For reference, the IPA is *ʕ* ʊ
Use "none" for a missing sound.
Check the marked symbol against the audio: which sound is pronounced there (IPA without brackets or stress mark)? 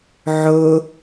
ʕ